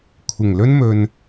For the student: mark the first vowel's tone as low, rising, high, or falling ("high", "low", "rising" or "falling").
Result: low